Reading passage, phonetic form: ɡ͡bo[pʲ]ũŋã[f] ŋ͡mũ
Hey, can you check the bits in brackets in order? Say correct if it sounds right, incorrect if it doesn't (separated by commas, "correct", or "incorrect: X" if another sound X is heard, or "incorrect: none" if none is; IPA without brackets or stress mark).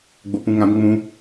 incorrect: p, incorrect: b